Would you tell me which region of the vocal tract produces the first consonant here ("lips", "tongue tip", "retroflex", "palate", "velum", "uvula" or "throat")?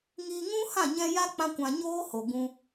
velum